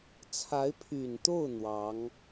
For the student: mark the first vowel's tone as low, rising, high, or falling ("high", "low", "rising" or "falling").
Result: rising